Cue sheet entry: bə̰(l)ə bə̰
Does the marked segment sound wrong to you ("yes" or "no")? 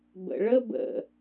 yes